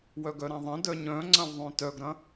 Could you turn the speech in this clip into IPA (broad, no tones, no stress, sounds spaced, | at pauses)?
w œ ɡ œ ɾ ã ðˤ ɐ̃ d œ ɲ œ̃ ŋ͡ǀ ɐ̃ w ðˤ œ̃ t œ ɡ ɾ ɐ̃